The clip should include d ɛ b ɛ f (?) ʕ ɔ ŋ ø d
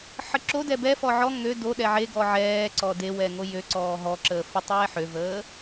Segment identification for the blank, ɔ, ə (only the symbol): ɔ